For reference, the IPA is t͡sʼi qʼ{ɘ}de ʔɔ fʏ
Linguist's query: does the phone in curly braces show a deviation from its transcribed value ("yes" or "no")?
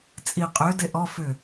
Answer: yes